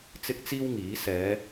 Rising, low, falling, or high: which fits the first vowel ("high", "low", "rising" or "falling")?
high